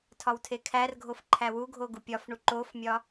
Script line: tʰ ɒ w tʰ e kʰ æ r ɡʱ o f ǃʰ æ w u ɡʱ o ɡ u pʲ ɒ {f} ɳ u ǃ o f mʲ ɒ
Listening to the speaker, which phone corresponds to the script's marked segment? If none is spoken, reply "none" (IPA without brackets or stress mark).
f